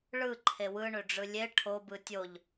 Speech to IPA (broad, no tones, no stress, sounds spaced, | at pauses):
ɭ ɯ ǃʰ e w ɯ ɳ ø ɖ͡ʐ ɯ lʲ e ʈʰ o b ɯ tʲ o ʎ